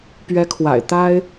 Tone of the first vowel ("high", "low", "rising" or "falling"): rising